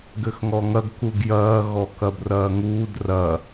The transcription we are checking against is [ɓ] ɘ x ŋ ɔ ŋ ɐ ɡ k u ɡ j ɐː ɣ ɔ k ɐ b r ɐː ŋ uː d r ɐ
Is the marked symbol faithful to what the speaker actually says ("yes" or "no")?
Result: no